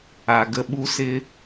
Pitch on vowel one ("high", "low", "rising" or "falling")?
low